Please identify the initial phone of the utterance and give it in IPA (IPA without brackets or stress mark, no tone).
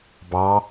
b